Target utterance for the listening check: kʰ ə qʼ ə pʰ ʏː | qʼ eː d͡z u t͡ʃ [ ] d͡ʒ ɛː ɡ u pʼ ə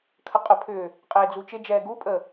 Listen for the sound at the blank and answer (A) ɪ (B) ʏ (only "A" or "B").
A